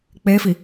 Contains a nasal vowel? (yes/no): no